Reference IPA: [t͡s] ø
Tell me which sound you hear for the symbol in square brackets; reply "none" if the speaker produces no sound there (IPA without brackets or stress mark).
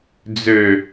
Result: d͡z